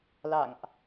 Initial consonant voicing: voiced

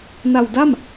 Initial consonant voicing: voiced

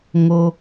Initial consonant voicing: voiced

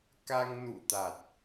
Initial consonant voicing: voiceless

